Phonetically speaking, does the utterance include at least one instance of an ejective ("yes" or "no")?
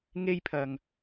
no